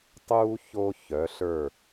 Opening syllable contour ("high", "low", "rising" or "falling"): high